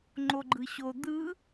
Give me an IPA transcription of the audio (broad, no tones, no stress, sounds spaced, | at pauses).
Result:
ŋ͡ǃ o ɡ͡ǃ ɯ ɕ o d̪ ɯ